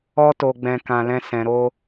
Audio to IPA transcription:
ɔ˧ t o˨ ɡ͡b ɛ̃˨ k ã˧ l ɛ̃˦ s ɛ̃˧ ɾ o˦

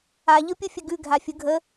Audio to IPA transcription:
a ʎ ɯ pʲ u fʲ ə ɡ ʉ ɡʱ a fʲ ɯ ɡʱ ə

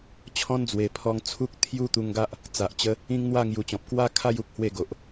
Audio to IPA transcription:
t͡ɕʰ ɔ̃˦ n d͡z w e˨˩ pʰ ɔ˧ ŋ t͡sʰ u˦ k̚ t̪ʰ j u˦ t̪ u˧ ŋ ɡ a˦ ʔ | t͡s a˨ ʔ t͡ɕ ə˦ | ĩ˦ ŋ n̪ w a˥˧ ŋ j u˧ t͡ɕ ɔ̃˨ p̚ k w a˦ kʰ a˥˧ j u˦ k̚ h w e˥˧ ɡ o˨ ʔ

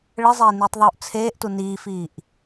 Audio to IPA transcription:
ɭ ɘ zˤ eː n iː tˤ ðˤ uː ʔ t͡sʰ eː ʔ t u n iː f iː ʔ

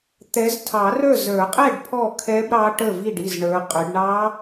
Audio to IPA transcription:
t̪ ɛ˨˦ z tʰ ɑ˨˩˦ r ə˞˥˨ z ə˞˨˩˦ qʼ ɛ˥˨ ɖ pʰ ɔ˥˨ kʰ ɛ˦˥ b ɾ ɑ˦˥ ʈ ə˥˨ v i˥˨ ɖ i˥˨ z ɳ ə˞˨˦ qʼ ʏ˨˦ ɖ ɳ ɑ˦˥

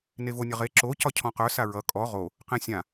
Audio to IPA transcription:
n e v o nʲ ʌ ʁ e ǁ o c ɒ cʰ ɔ̃ q œ s a ɹ ʌ kʼ ɔ ʁ o | q ẽ sʲ ã

